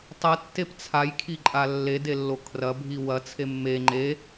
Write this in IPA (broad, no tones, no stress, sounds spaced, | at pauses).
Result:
tˤ ɐ tː e p t͡sʰ a j kʰ i ǃʼ a lː e d e lː o kʰ r ɐ bʱ i w ɐ t͡sʰ e mː e ŋ͡ǃ e